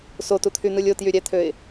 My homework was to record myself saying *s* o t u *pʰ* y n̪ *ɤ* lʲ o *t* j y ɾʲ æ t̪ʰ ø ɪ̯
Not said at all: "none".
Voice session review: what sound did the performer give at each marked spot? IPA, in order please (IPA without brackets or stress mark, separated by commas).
s, t̪ʰ, ɯ, t